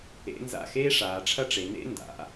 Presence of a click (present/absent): absent